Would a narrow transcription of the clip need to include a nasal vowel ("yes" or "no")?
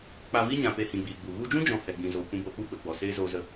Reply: yes